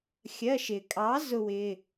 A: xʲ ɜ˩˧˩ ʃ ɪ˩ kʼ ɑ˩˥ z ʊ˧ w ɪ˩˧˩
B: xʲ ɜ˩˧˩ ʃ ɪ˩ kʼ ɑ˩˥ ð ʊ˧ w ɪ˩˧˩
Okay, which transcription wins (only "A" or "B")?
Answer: A